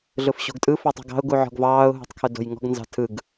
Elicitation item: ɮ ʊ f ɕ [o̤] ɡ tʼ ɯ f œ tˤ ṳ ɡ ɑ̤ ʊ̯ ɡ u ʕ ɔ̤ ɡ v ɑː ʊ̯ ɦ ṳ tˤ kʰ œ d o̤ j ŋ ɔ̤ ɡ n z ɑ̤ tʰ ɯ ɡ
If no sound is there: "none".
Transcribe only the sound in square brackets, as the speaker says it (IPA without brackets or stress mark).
o̤